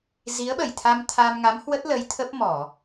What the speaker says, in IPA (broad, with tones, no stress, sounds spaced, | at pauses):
z i˨˦ ə̯ ɓ ə˧˩ j t̪ʰ a˧ m t̪ʰ a˧ m ŋ a˨˦ m h w ə˦˥ t̚ l ə˨˦ j t̪ʰ ə˦˥ p̚ m ɔ˧˩˨